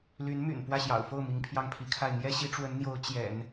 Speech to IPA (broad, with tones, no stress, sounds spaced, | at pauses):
l y˧˥ n m y̰˨˩ n p w ä˥˩ ɕ j ɑ̰˨˩ ʊ̯ f o˥˩ ʊ̯ m i˧˥ ŋ pʰ j ɑ˥˩ ŋ pʰ i˧˥ kʰ a˥˩ ɪ̯ n̪ j ɛ˥ ɕ i˧˥ ʈ͡ʂ w ə˧˥ n n̪ j o˧˥ ʊ̯ t͡ɕ j ɛ̰˨˩˦ n